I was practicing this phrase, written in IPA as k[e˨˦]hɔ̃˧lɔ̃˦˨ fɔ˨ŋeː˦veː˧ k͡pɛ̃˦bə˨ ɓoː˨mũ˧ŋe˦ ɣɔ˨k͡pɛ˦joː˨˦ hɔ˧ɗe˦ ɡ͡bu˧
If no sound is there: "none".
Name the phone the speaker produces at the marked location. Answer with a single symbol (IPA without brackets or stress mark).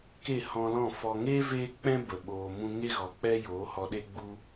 e˦˨